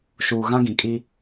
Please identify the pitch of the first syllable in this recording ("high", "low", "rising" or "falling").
low